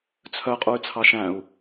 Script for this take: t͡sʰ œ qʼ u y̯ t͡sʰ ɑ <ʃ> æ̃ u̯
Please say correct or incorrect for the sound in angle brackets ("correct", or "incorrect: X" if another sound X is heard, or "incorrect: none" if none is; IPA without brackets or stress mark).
correct